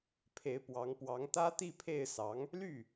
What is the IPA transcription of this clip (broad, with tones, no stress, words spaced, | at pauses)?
pʰe˧˥ɪ̯pwɑ˧˥ŋpwɑ˧˥ŋ t̪ä˥t̪i˥˧pʰe˥˩ɪ̯sɑ˧˥ŋ | ly˥˩